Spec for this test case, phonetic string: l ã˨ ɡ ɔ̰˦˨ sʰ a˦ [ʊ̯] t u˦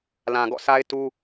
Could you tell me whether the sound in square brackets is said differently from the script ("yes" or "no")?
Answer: yes